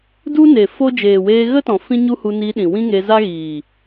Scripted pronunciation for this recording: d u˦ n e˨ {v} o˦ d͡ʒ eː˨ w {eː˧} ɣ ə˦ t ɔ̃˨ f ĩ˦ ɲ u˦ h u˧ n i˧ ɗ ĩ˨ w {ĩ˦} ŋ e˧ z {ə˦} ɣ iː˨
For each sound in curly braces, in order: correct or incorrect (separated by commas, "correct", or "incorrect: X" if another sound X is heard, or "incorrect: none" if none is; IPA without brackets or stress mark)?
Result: incorrect: f, correct, correct, incorrect: a˦